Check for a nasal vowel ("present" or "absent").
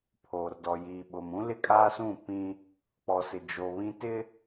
present